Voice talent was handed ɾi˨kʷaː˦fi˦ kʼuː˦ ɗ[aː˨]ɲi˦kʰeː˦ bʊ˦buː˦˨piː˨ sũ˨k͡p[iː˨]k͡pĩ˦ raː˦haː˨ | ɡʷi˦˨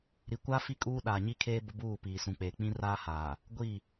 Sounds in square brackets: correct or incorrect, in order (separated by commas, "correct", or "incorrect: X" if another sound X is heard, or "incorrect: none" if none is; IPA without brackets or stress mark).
correct, incorrect: eː˨